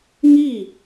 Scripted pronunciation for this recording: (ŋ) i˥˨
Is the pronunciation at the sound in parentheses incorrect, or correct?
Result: correct